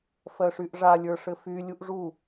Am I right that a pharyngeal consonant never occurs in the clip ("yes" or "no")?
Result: yes